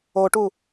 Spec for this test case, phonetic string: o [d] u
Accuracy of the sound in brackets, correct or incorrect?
incorrect